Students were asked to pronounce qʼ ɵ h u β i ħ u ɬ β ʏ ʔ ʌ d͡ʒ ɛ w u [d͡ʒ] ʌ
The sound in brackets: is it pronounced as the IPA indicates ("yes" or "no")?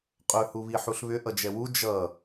yes